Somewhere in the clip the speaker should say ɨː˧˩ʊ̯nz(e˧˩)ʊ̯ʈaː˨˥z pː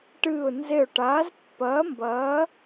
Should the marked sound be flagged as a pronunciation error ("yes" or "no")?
no